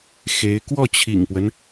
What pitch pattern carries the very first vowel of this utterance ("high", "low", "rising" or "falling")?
rising